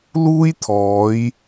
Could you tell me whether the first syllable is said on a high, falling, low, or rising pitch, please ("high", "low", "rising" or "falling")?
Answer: high